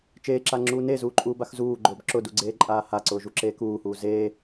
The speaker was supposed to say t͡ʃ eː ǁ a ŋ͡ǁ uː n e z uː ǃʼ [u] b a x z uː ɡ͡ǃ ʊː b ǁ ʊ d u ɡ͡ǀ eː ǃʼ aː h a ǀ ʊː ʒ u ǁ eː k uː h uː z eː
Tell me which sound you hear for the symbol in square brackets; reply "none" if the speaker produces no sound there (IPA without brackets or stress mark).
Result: uː